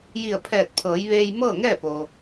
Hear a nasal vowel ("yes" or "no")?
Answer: no